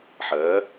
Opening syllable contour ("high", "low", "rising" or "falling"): rising